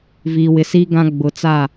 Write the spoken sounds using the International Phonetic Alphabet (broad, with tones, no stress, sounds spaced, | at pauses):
v iː˨ w ɪ˨ s iː˦ ɡ ã˦ ɡ͡b ʊ˨ t͡s a˦˨